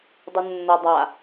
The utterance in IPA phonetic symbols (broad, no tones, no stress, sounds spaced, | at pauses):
dˤ u nː ɤ dˤ a